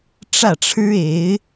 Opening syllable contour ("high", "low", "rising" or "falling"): falling